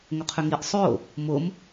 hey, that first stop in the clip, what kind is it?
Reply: aspirated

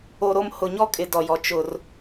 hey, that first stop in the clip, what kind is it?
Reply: ejective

